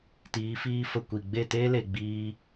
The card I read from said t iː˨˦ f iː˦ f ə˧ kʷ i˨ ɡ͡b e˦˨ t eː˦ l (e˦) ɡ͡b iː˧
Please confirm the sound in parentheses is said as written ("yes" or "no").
no